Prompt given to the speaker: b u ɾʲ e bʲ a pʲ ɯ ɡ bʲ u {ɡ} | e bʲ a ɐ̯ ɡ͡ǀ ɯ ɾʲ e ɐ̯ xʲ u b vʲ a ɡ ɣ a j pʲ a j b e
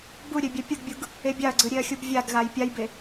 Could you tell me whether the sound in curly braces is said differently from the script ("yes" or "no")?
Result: no